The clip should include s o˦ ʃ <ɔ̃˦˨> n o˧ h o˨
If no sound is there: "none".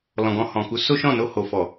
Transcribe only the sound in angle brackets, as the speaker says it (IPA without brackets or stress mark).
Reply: ɔ̃˦˨